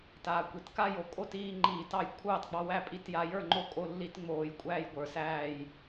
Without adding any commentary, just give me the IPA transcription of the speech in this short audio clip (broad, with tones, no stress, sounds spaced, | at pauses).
t aː˩˧ kʷ i˩ t k a˥˨ j o˩ kʼ o˥˨ t iː˥˨ ŋ͡ǃ iː˧˩˧ t ɑ˩˧ j kʷʰ ɑː˥˨ t ɡ͡b ɑ˧ w æ˥˨ pʼ i˧ t j a˧ j ə˞˥˨ ŋ͡ǃ o˥˨ kʼ o˧ lː i˧ t ŋ͡m oː˧˩˧ j kʷʼ æː˧ j ɡʷ ə˞˩˧ s æː˥˨ j